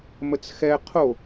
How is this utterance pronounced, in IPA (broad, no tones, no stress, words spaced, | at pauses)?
mət͡sxɛ qʰo